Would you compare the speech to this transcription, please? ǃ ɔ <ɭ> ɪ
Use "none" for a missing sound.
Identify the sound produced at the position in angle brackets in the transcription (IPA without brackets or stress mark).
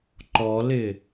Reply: l